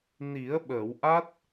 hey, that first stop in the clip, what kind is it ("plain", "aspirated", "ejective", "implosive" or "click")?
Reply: implosive